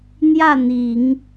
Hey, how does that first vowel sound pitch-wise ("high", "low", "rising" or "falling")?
falling